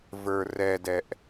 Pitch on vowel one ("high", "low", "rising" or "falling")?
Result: low